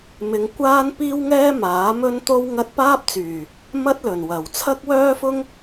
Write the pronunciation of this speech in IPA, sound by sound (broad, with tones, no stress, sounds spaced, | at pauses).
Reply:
m ɪ˧ ŋ kʷ aː˥ n p iː˥ w ŋ ɛː˥ m aː˨˥ m ɵ˥ n t̪ o˥ w ŋ ɐ˥ t̚ p aː˥ p̚ t͡s yː˨˩ | m ɐ˥ t̚ l ɵ˨˩ n w ɐ˨˩ w t͡sʰ ɐ˥ k̚ w œː˥ f ʊ˥ ŋ